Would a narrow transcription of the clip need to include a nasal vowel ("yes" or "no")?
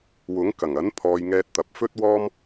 no